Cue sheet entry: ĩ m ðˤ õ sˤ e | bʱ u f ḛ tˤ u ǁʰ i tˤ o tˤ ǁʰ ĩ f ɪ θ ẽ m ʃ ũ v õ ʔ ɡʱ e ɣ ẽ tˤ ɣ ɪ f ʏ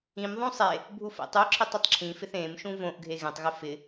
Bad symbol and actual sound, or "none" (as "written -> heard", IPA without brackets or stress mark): ʏ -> ɪ